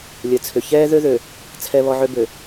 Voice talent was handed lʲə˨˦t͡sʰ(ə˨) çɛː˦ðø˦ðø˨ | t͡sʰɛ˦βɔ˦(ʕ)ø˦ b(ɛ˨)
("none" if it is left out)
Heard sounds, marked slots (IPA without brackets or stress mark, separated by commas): ʏ˨, ʕ, ø˨